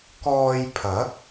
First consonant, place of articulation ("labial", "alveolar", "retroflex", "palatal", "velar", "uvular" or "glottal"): velar